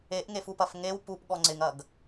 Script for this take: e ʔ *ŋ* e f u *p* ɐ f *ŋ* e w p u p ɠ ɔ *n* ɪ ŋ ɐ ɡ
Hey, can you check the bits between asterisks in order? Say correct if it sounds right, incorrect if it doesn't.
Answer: correct, correct, correct, incorrect: ŋ͡ǀ

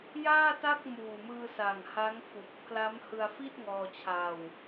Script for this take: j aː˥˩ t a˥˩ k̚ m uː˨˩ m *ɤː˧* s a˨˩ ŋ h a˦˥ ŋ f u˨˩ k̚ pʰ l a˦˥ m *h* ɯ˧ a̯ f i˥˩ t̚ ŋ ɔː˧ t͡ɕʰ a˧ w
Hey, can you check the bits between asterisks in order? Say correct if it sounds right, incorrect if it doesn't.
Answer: incorrect: ɯː˧, correct

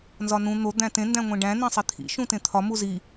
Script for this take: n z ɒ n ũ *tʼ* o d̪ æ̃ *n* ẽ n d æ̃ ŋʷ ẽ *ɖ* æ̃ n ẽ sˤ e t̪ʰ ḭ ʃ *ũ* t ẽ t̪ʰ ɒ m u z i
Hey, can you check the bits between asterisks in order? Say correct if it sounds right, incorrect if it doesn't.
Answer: incorrect: n̪, incorrect: t, correct, correct

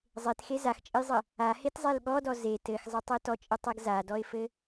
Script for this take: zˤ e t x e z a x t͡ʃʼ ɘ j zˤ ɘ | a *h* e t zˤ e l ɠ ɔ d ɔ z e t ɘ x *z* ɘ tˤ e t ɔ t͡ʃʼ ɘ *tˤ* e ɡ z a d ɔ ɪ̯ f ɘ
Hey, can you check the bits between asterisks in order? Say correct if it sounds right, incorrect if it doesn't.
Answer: correct, incorrect: zˤ, correct

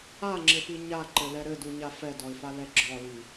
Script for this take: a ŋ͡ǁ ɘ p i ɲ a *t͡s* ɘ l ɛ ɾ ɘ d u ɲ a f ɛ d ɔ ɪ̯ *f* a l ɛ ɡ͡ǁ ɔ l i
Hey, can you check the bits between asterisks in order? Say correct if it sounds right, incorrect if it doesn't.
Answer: incorrect: ǃ, correct

